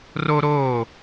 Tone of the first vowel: high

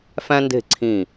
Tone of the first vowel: high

